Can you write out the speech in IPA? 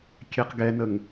kʲ ɛ q ɡ ɛ n ə ŋ

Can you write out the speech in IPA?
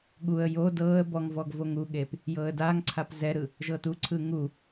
ɠ u ə̯ j o d ɤː ə̯ b ɔ ŋ v ɔ ɡ v o ŋ u ɠ e p | j ɤː ə̯ d aː ŋ ǀʰ a p z ɛ ɾ ɯ | ʒ ɤː t u ǀʰ ɯː ŋ u

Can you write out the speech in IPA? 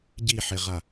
ɟ i ħ e ʁ a

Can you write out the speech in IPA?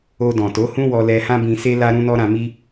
o˧ d ɔ̃˨ t o˨˦ h ũ˦ w ɔ˧ l ɛ˧ h ã˦ b ĩ˧ s e˦ l a˧ ɾ ũ˧ n ɔ˧ ɾ ã˧ m i˦

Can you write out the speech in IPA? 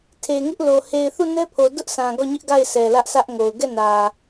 tʰ e˨ ŋ ɪ˦ ʔ l o˨ h e˨ ɪ̯ θ u˦˨ n ɛ˦ pʰ o˨ d ʊ˦ ʔ sʰ ã˨ ɡ ɔ˦˨ ɲ ɪ˦ ʔ ɡ a˦˨ ɪ̯ sʰ ɛ˨ l ä˦ ʔ sʰ ä˦ ʔ ŋ o˨ ʊ̯ ɡ ɛ˦˨ n ä˨

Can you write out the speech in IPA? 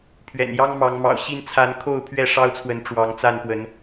pʰ ɥ ɛ̰˨˩ n j ɑ˦ ŋ m ɑ˨˦ ŋ m ɑ̰˨˩ ʊ̯ ɕ i˥˨ n t͡sʰ a˨˦ n kʰ o˥˨ ʊ̯ pʰ ɥ ɛ˥˨ ʂ ɑ˦ ʊ̯ t͡sʰ w ə˨˦ n ʈ͡ʂ w ɑ˨˦ ŋ t͡s a˥˨ n p w ə˨˦ n

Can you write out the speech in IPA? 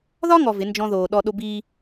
ð ɒ˦ ŋ ɔ˨ v ɪ˨˦ n d͡ʒ ɔ̃˦ ð oː˨ ɗ ɔ˦ ɗ o˦ b iː˦

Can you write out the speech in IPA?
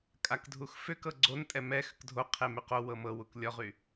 kʼ a k dʱ u x f ʏ k ɤ ɡ͡ǀ o n tʼ ɛ m ɛ x ʏ k dʱ o qʰ e m y q o w ɤ m ɤ w u k lʲ ɔ ʁ y

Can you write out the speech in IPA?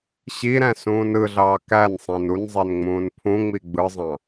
ɕ i ɾ æ̃ s ũː n ɯ ɮ ɑː k æ n sˤ ẽ n u n zˤ e n ŋ͡m ũː n pʰ ũ ŋ͡m i ɡ͡b ɯ zˤ ɑ̃

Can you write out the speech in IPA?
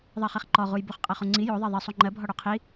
ðˤ ɜ χ e χ ǃ ɔ ʁ u j b u χ qʼ ɜ χ u ŋ͡ǀ i j o ðˤ e ðˤ i sˤ u ŋ͡ǃ ɜ bʱ ɔ ɽ o qʰ i

